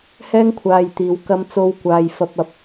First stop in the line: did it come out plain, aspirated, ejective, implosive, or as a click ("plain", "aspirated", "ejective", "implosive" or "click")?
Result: aspirated